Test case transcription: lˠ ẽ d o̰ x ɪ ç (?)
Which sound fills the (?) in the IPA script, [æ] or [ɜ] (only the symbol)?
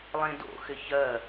ɜ